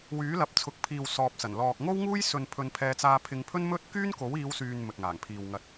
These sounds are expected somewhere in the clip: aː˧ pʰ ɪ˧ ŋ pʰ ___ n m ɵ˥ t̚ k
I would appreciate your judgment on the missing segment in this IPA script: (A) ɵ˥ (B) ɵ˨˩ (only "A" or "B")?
A